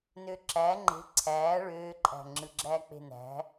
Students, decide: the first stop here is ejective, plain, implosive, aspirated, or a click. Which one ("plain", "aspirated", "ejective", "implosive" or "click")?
click